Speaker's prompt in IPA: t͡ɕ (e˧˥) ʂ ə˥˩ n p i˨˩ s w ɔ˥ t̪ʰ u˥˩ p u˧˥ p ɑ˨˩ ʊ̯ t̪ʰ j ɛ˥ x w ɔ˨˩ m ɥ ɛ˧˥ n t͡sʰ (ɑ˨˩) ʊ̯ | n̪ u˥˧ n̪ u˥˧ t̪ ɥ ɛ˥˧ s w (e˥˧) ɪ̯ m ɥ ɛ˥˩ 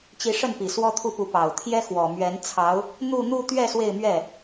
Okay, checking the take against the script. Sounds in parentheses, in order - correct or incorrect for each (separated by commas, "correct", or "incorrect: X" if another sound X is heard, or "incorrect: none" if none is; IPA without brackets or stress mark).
incorrect: i˧˥, incorrect: ɑ˧˥, correct